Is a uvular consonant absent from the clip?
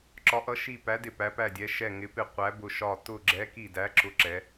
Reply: no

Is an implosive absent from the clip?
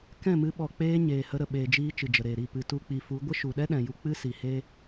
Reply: no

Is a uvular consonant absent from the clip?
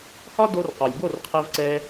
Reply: no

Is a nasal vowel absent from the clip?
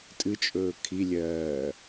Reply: yes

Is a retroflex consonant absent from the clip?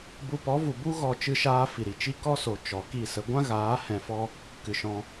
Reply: yes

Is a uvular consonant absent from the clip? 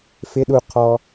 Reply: no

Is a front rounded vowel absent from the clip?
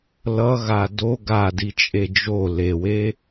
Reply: yes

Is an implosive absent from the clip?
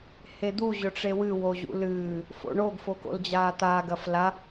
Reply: yes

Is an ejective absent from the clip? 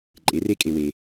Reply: no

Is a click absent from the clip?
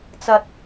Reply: yes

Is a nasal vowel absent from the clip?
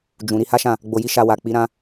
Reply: no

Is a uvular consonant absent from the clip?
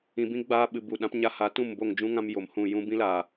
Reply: yes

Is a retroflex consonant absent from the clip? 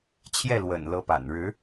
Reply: no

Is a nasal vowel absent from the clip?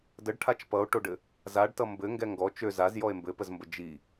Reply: yes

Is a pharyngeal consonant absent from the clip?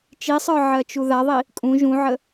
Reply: no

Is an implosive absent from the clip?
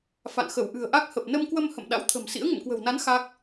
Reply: no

